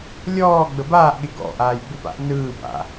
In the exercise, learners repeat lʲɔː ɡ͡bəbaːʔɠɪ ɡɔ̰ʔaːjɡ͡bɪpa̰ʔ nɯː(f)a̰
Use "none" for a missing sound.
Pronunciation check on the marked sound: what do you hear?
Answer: b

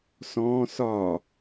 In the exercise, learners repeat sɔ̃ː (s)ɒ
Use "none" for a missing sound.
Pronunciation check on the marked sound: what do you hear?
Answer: s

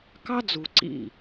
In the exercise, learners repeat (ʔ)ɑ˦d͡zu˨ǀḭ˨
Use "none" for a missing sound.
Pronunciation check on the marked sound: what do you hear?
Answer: k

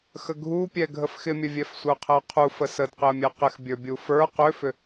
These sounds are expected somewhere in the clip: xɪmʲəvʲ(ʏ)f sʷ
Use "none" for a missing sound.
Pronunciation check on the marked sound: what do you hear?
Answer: ɛ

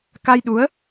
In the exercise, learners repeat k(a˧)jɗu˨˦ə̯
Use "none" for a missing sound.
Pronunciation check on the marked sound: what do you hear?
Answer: a˧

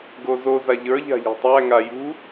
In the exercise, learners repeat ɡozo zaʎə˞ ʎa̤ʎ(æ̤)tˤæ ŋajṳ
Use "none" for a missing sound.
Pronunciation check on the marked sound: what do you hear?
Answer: æ̤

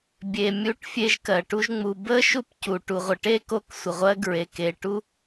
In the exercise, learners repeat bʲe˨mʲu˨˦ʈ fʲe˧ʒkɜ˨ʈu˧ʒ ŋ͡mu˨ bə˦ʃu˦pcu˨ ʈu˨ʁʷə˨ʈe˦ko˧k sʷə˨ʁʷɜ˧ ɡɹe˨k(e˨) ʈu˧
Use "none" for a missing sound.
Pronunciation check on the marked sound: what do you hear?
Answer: e˨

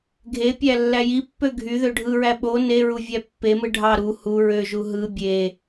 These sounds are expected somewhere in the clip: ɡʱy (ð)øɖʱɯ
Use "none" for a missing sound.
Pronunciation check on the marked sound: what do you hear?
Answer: ð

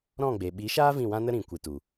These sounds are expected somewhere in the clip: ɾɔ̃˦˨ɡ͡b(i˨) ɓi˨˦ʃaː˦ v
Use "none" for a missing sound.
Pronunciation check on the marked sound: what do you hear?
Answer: e˨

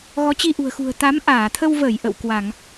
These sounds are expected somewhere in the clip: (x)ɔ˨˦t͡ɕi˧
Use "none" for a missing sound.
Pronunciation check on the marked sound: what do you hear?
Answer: ɣ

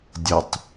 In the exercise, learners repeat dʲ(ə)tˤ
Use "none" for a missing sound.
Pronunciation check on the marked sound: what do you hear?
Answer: ə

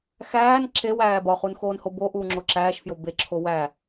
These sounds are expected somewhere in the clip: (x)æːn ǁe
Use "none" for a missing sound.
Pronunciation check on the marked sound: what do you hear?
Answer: x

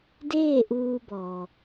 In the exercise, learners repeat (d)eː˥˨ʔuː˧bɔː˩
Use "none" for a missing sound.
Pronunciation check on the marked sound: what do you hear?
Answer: d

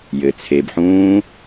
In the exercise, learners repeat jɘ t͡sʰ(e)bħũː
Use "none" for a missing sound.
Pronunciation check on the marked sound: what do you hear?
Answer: e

